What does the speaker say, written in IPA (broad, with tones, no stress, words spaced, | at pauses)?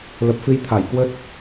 lə˨˩p̚fɨ˧j t̪ʰa˧˩jkwə˦˥t̚